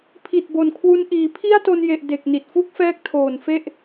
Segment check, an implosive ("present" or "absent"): absent